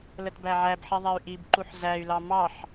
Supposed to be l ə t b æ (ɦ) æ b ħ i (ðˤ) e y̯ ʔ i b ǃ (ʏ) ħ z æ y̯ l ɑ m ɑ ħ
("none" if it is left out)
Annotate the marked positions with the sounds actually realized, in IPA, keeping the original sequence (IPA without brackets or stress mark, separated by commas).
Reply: ʕ, ðˤ, u